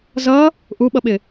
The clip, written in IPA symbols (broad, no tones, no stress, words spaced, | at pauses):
zʌ | ʔuɓʌɓɪ